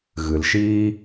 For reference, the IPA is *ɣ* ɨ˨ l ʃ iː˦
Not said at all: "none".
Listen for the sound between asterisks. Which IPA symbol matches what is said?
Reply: ɣ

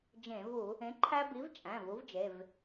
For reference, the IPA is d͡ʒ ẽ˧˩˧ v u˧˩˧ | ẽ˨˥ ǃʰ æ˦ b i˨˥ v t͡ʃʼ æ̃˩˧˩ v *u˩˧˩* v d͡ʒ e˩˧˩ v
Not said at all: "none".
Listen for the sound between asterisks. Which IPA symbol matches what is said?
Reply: u˨˥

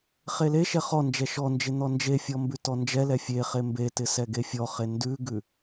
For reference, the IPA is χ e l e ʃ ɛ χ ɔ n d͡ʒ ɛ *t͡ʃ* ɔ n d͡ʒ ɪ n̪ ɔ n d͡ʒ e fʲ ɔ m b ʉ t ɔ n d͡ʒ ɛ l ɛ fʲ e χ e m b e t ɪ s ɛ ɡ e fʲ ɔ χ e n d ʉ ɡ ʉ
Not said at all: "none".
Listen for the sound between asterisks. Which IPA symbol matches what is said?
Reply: ʃ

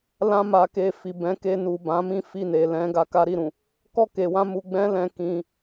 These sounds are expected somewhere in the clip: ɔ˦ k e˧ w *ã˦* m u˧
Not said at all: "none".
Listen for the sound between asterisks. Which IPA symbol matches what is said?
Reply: ã˦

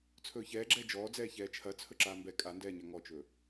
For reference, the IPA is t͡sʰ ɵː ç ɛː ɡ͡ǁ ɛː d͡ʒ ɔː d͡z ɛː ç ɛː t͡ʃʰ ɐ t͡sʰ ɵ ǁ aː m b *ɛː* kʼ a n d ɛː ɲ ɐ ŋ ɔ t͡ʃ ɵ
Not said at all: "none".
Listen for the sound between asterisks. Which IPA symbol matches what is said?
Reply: ɛ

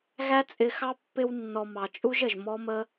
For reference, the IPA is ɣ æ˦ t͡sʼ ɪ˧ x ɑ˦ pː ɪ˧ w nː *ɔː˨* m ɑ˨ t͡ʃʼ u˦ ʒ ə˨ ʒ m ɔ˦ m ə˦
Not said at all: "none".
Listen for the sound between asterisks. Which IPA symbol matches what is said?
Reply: ɔ˨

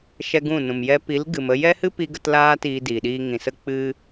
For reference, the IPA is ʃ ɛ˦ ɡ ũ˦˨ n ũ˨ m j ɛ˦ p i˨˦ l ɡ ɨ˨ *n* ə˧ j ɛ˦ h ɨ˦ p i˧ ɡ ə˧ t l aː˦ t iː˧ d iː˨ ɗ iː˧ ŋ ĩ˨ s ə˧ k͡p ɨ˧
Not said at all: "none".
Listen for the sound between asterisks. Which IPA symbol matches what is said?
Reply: m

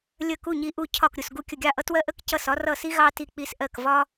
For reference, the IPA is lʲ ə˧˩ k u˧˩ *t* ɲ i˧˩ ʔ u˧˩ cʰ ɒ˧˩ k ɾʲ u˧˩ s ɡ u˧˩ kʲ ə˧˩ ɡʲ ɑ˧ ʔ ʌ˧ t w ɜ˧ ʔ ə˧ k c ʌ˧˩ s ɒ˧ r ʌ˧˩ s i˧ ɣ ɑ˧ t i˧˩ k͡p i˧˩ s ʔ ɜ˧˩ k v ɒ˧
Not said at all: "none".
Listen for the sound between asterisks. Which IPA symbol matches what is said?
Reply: none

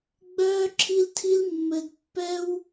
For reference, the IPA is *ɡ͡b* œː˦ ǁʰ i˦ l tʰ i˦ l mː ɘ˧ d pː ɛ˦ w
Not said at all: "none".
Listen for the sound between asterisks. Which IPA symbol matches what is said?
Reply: ɡ͡b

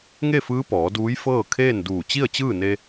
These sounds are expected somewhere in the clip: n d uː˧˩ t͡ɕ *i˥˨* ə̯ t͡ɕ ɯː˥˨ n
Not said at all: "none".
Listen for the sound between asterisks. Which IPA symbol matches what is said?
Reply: i˥˨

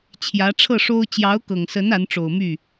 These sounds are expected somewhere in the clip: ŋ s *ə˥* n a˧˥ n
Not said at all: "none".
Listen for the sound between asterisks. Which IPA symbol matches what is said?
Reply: ə˧˥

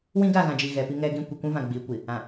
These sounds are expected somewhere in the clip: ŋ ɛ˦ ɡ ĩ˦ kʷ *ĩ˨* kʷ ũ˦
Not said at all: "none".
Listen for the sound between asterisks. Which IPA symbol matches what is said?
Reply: i˨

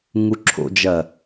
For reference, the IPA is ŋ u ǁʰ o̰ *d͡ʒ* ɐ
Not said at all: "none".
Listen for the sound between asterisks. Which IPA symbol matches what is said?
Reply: d͡ʒ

